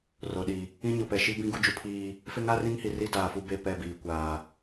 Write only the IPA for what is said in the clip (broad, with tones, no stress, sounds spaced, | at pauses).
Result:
r o˨ ɗ i˨ | ĩ˦ ɲ o˨ p ɛ˨ ʃ i˦ b ĩ˦ ɡ u˦ d͡ʒ u˦ pʰ iː˦ | f e˦ ŋ a˦ r ĩ˦ ŋ h i˨ r i˦ d aː˨ f u˦ b e˦˨ p ɛ˦˨ b iː˨ kʷ aː˨